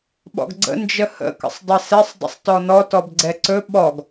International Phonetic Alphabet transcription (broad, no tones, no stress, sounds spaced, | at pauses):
ɓ ɔ̰ ɡ ɡ͡ǀ ə̰ n d͡ʒ ə h ə̰ k ə̰ sˤ dˤ ɛ s ɛ sˤ dˤ ə̰ sˤ t ɔ n ɔ t ɔ b ɡ͡ǀ ɛ ǀ ɵ ɓ ɔ ɡ